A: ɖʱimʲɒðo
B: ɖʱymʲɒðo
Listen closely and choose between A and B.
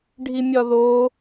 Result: A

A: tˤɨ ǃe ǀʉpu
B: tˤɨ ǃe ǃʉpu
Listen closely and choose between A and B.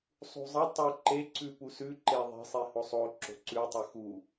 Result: A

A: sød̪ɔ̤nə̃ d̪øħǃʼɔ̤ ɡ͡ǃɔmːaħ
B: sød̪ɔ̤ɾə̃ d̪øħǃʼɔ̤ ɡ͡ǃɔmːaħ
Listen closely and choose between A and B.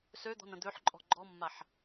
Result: A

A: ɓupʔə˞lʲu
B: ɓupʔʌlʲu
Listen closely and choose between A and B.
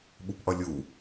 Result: B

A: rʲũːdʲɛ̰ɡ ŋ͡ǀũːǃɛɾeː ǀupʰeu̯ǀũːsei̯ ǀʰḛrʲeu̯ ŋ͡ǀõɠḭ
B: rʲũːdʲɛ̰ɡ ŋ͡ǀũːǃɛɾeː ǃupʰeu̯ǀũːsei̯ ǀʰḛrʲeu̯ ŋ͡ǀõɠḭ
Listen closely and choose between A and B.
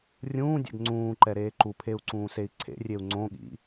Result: B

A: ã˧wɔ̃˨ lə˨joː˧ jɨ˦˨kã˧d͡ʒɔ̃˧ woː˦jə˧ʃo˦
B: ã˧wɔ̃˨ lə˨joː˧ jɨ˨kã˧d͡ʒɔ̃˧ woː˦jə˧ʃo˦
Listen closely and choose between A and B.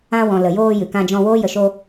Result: B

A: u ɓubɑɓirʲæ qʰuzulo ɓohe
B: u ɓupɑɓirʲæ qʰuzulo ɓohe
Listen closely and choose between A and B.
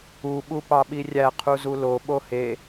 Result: B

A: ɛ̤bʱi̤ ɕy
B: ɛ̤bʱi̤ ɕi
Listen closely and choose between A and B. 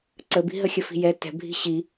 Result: B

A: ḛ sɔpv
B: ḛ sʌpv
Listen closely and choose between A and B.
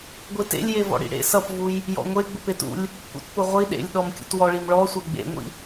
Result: B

